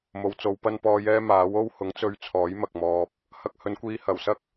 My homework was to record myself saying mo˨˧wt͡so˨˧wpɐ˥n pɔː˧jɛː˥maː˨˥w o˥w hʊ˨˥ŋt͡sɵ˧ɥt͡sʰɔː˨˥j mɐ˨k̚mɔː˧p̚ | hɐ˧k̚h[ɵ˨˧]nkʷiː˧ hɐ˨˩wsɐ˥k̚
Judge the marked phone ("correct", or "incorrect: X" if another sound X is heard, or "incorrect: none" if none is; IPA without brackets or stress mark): correct